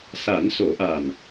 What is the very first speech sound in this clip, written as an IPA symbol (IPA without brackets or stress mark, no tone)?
s